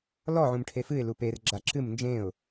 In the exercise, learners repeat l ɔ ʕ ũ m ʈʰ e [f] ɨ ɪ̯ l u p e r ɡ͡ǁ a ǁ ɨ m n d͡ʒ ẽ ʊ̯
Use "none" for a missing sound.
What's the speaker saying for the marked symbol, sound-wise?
f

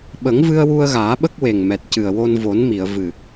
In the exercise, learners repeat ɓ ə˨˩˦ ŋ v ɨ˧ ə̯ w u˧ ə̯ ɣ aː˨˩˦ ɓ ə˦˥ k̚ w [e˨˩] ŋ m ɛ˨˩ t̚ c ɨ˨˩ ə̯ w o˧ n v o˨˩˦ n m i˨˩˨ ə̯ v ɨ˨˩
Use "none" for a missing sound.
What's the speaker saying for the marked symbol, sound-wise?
e˨˩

